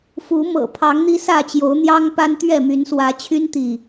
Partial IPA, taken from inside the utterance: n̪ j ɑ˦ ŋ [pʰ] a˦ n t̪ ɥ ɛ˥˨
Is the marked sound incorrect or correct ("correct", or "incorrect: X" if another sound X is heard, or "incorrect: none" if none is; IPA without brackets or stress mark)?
incorrect: p